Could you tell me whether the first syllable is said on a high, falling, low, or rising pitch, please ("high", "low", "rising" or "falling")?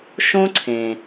high